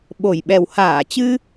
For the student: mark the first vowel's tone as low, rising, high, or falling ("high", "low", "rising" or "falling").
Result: low